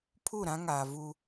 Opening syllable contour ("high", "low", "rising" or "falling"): falling